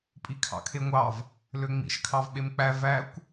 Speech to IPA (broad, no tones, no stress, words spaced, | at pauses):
pʼikʰɑ̰kʰeŋʷɑv | løŋ͡mḭʃ kʰɑvɓemk͡pæ vækʷ